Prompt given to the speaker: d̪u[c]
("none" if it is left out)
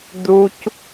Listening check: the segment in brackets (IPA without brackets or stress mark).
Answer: c